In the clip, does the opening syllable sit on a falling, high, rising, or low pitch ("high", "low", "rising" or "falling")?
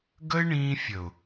high